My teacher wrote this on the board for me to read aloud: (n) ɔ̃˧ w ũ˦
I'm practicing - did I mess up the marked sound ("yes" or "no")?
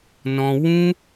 no